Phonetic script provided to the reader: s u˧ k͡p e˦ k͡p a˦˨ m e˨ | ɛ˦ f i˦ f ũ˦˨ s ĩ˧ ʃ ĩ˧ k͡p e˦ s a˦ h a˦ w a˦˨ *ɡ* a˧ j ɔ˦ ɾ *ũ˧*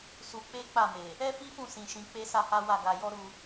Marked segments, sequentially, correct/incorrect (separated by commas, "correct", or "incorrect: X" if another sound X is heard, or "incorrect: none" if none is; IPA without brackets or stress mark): correct, incorrect: u˧